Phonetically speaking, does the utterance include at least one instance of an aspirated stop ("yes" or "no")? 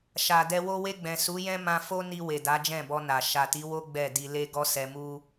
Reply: no